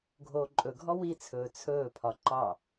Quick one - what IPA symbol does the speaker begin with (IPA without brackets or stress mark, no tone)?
ɡʱ